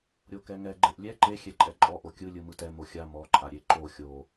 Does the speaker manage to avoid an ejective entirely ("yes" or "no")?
no